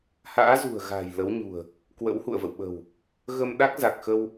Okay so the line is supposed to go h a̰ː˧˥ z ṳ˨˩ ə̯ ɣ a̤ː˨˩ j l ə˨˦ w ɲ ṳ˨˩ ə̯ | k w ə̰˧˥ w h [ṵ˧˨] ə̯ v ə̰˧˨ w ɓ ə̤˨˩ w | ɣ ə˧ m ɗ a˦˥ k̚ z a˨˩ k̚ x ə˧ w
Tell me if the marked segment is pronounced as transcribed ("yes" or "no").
yes